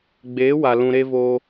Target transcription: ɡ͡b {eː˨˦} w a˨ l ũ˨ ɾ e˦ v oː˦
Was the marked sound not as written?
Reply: no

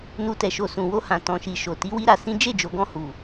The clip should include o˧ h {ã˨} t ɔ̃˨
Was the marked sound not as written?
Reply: no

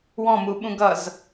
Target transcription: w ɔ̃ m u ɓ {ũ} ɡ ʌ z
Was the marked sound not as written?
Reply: no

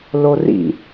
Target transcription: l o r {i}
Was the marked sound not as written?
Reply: yes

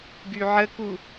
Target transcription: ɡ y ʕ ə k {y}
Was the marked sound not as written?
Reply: yes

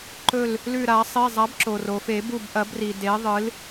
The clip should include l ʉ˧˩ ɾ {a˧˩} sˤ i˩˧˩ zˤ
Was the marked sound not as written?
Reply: yes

